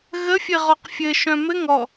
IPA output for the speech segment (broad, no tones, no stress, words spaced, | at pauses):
ɣəfʲɘʁɔq fʲɘ ʃœ̃mɘ ŋɔ